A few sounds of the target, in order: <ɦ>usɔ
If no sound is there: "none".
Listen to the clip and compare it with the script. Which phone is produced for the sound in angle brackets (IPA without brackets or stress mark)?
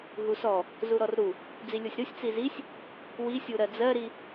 ɦ